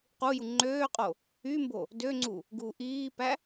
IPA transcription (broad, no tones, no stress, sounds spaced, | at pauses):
q u j u ŋ͡ǃ øː qʼ o | y m b o | d ø ŋ͡ǀ u | ɡ uː ʔ iː p æ